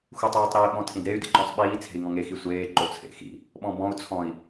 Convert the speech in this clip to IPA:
x u tˤ iː tˤ ɾ u i̯ ɓ ɔ̃ tʰ ĩ d ɾ e y̯ d ḭ ǃ ɔ̃ sˤ ɓ iː t͡sʰ e̤ i̯ ŋ ɔ̃ ŋ e x i sʷ eː ǃ o t͡sʰ ḛ x ḭ | ɓ ɔ̃ b ɔ̃ u̯ t͡sʰ ɔ̃ i̯

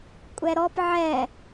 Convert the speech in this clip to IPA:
kʷʼ ɛ ɾ ɔ p ʕ ɛ

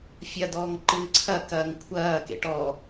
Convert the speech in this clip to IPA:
fʲ ɐ d ɔː ŋ ǃ ɨː ǀʰ ɐ k ɐː ŋ kʷʰ ɐː k ḛ ʈ ɔ

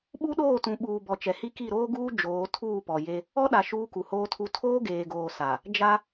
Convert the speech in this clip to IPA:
ɓ u˦ ɗ oː˦˨ t ũ˨ ɓ uː˨ b ɔ˨ t͡ʃ ɛ˨ h i˦ k i˦˨ ɾ oː˦ ɡ uː˦ d͡ʒ oː˨˦ tʰ uː˦˨ p ɔ˨ j e˦ | ɔ˦ ɗ a˨ ʃ uː˦ k u˨ h oː˦ tʰ u˦ tʰ oː˦ ɡ eː˨ ɡ oː˨ s a˨ | d͡ʒ a˦

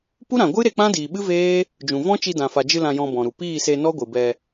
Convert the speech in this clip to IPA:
p u˦ ɾ ã˨ ɡʷ ɨ˦ ɾ e˧ k͡p ã˦ d iː˨ ɓ ɨ˦ v eː˦ | d͡ʒ ũ˨ v ɔ̃˦ t͡ʃ i˧ d ã˨ f a˨ d͡ʒ ɨ˧ l ã˧ j ɔ̃˧ b ɔ̃˨ ɾ u˨ p iː˦˨ s e˧ n ɔ˦ ɡʷ ɨ˨ b ɛ˧

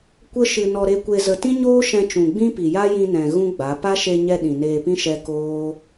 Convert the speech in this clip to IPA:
kʷ ə˦ ʃ ɨ˧ n ɔ˧ ɾ e˧ kʷ e˧ z ə˧ t ĩ˦ ɲ oː˦ ʃ ɛ̃˧ t͡ʃ ũ˨ ɡ͡b ĩ˦ p i˨ j a˦ j ĩ˧ n ɛ̃˨ ɣ ũ˦ ɡ͡b a˨˦ p a˦ ʃ e˧ ɲ ɛ˧ ɗ ĩ˨ n eː˧ p ĩ˦ ʃ ɛ˦ k oː˦

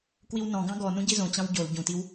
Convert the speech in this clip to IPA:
k w i w n ɔ̃ ɡ ɑ̃ ɡ ɔ n ũ ɟ i z õ t͡ɕ ɑ̃ w ɟ o l ɟ ũ t i w

